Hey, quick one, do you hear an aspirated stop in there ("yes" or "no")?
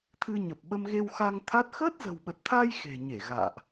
yes